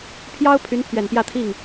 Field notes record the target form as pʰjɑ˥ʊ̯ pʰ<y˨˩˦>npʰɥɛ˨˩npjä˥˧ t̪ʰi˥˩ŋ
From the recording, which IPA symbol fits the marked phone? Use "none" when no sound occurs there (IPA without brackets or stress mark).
y˧˥